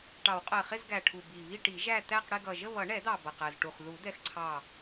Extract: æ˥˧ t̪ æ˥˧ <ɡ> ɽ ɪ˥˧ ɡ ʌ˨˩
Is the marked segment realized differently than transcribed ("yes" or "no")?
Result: yes